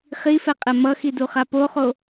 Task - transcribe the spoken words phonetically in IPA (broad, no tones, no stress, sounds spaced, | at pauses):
χ i f ɛ qʼ ɛ m ʌ x i d u χ a p o χ o